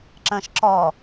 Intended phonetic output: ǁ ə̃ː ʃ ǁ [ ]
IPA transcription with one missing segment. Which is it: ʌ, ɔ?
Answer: ɔ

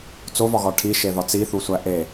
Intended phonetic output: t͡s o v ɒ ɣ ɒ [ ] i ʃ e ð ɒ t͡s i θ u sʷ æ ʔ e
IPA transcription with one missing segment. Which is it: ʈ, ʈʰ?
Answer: ʈʰ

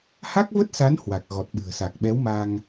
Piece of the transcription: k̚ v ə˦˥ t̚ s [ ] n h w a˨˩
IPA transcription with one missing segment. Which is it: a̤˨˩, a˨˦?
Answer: a˨˦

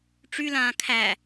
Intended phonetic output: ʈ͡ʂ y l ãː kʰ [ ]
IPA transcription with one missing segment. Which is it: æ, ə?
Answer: æ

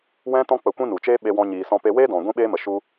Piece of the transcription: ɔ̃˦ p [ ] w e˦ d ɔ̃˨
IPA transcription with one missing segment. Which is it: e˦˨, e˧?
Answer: e˧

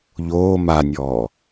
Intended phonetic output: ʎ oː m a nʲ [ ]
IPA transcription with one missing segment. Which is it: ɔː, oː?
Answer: ɔː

